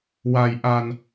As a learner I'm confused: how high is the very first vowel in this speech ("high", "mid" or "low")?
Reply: low